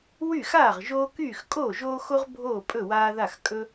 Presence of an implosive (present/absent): absent